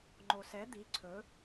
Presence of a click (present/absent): present